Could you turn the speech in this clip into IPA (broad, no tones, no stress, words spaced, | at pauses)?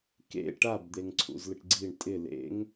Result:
kḛ ʈabd̪eŋ ǀʰṵzlɪʈɡ͡ǀiɳ tʼɪ lḛŋ